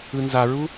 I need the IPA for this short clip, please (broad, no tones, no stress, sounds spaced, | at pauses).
ɯ n z a ɹ u